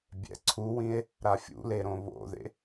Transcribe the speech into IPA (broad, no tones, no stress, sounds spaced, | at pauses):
bʲ ɛ̰ ǀʰ u w ĩ e̯ | ɾ a fʲ ṵ l e ɾ õ β o̰ ð ḛ